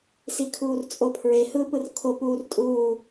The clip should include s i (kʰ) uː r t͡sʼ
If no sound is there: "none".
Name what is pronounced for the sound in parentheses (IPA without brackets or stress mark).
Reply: kʰ